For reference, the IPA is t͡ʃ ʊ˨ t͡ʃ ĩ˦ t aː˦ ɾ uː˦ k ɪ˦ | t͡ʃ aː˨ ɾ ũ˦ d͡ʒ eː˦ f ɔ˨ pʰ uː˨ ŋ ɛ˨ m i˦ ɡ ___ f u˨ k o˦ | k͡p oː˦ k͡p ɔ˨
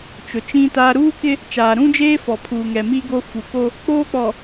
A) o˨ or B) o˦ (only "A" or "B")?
B